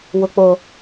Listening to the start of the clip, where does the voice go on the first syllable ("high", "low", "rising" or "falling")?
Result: low